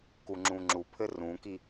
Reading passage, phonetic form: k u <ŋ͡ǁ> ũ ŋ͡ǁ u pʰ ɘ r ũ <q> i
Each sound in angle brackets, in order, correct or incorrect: correct, incorrect

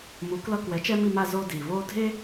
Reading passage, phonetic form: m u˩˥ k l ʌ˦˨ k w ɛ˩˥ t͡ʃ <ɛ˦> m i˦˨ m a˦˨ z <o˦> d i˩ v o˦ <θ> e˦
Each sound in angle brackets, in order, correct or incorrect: correct, correct, incorrect

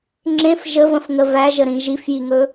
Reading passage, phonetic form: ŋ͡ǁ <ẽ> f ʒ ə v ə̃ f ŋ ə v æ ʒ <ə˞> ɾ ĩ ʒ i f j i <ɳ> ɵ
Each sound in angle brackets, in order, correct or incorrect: correct, incorrect, incorrect

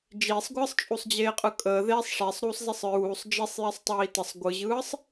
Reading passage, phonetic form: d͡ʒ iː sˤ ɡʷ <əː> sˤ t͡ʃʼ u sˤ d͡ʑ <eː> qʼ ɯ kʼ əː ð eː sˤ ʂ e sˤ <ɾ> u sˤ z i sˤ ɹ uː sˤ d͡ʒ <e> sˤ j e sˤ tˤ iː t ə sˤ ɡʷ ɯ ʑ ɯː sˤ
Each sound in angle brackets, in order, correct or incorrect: incorrect, correct, correct, incorrect

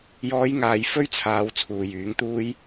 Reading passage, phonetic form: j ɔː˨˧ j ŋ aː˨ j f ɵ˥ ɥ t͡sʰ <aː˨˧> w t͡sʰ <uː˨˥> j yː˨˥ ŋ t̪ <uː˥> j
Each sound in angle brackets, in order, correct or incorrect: correct, incorrect, correct

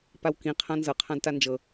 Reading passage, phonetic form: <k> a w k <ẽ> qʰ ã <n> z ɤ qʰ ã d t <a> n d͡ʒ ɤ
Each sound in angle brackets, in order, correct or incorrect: incorrect, incorrect, correct, correct

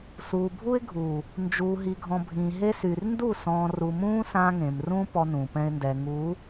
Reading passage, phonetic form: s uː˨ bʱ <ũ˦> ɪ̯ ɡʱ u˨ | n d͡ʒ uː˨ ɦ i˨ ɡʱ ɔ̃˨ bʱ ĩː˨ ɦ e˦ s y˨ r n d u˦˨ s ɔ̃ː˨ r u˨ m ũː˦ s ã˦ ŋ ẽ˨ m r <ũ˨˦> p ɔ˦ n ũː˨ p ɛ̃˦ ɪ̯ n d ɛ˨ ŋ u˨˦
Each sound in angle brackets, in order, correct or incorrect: incorrect, incorrect

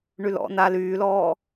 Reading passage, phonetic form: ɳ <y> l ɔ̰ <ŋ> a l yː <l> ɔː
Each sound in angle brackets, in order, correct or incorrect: correct, incorrect, correct

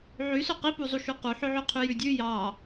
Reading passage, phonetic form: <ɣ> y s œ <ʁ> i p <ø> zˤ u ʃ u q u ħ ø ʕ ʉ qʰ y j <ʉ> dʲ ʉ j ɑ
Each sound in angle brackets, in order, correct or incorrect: incorrect, incorrect, incorrect, correct

